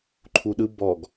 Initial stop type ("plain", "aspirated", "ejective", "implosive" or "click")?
click